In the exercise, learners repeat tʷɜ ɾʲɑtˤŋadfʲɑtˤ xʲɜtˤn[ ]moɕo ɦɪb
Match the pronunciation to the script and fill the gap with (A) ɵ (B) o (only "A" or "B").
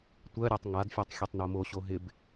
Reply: B